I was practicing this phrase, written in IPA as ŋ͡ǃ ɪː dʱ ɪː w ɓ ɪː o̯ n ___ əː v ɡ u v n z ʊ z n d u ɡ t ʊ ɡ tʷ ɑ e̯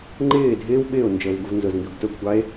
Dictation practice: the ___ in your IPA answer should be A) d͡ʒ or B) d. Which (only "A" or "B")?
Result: A